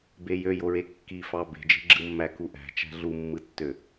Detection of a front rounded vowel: present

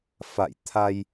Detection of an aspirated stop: present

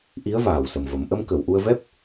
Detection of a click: absent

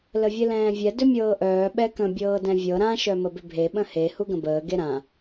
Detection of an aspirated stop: absent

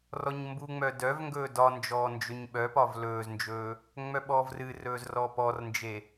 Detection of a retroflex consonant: absent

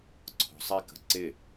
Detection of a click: present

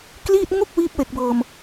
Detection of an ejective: absent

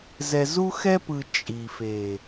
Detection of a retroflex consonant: absent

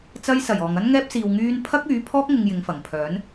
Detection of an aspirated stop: present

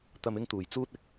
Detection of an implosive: absent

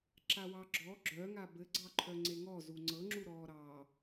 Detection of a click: present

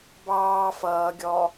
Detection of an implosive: absent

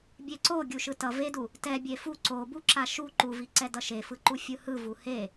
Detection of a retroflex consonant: absent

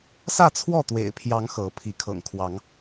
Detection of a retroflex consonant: absent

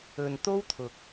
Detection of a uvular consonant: absent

